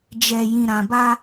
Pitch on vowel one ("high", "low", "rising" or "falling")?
low